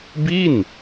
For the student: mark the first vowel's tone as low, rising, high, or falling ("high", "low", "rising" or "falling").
falling